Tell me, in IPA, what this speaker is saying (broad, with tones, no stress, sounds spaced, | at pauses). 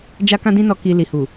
d͡ʒ a˦ k ã˦ d ĩ˦ n ɔ˧ k i˧ l i˨ h u˨